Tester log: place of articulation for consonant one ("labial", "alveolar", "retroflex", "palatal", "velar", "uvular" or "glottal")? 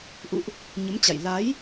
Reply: glottal